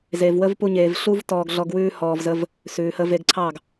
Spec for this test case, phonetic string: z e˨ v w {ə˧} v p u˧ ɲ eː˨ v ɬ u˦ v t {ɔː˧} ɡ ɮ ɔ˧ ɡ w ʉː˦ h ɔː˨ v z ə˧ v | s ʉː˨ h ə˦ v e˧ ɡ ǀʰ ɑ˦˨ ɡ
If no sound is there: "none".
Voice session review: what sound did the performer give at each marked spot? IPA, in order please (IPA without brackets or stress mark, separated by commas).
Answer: ə˦, ɔː˧